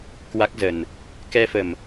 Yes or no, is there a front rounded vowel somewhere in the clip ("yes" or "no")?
no